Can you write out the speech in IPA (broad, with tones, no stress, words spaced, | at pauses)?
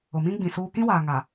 ʊ˨mĩ˦ɡ͡bĩ˨ suː˦ kĩ˦waː˨ ŋa˨